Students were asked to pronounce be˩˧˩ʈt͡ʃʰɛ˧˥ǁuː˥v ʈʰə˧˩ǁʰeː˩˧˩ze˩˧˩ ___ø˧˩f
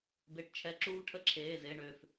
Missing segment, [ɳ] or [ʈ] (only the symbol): ɳ